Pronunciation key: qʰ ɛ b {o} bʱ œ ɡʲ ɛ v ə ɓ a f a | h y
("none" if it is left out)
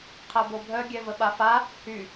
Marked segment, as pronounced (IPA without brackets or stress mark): o